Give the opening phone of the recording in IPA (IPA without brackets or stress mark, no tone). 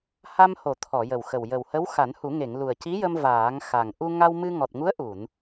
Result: h